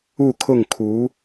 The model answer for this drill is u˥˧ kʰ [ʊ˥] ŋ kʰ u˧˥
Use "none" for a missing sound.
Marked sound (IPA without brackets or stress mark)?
ʊ˥˩